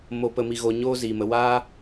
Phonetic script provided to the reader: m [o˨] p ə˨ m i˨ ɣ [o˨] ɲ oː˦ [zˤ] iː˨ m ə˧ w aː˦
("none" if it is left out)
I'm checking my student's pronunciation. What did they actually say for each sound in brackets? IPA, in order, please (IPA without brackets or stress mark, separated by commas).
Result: o˨, o˨, z